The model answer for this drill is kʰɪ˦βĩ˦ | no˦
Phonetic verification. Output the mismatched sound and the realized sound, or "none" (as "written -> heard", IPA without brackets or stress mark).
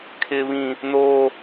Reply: none